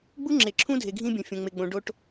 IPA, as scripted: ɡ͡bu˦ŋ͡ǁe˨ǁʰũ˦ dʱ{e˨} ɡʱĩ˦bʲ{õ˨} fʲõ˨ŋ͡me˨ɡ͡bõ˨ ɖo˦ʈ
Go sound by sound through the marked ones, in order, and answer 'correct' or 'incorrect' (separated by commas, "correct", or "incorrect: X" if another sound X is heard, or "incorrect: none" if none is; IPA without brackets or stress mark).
correct, correct